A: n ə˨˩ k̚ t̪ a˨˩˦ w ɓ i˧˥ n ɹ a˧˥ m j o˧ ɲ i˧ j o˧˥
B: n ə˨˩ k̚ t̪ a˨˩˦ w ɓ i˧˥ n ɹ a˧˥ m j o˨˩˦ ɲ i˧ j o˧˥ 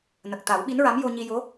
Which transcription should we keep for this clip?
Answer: A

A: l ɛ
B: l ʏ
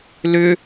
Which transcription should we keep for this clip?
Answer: B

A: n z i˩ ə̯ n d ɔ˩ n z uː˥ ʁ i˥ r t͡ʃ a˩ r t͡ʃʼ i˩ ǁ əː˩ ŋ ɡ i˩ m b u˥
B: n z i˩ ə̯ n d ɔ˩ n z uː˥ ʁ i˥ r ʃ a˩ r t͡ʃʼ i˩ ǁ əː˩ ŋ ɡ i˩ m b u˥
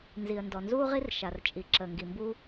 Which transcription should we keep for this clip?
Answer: B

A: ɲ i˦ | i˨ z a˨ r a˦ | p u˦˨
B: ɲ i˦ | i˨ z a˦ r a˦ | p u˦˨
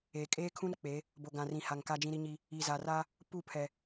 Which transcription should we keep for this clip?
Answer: A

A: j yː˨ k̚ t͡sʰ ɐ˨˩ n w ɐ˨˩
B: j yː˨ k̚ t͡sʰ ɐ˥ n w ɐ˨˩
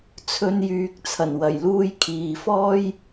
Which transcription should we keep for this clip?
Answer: A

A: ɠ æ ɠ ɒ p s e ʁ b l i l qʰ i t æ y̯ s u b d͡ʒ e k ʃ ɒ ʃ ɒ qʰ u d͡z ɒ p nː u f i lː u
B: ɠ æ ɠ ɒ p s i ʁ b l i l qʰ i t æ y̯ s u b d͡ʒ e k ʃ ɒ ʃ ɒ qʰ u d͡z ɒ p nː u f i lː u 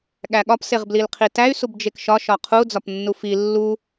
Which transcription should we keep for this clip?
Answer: A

